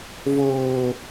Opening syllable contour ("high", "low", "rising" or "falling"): high